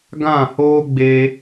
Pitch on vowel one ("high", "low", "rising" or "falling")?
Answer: falling